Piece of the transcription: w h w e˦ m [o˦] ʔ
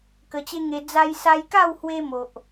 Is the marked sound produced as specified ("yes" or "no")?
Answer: no